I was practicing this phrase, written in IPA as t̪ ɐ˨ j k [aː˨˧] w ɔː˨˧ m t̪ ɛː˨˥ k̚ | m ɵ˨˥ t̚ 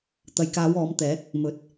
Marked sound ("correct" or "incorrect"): correct